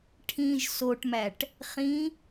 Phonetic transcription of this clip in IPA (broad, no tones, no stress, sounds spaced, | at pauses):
ʈʰ ĩ ʒ s o ʈ m æ ʈ | χ ĩ